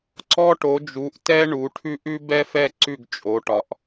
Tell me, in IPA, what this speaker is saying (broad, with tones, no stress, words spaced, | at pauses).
ǀɔ˦ʈo˩˧d͡ʒu˩˧ʔ tɛ˦ ɳu˩˧ʈʰʉ˦ʔ ʉ˦bɛ˦fɛ˦˨ ǀʉ˦˨ɡt͡ʃʼo˩˧ʈɒ˩˧ʔ